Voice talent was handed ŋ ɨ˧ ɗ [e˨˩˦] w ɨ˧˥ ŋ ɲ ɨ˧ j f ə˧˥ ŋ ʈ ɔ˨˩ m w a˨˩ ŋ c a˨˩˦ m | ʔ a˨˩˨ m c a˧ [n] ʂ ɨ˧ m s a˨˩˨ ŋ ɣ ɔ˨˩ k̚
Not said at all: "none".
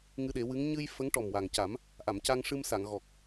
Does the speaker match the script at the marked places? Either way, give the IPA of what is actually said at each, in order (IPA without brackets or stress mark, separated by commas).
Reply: e˨˩˦, ŋ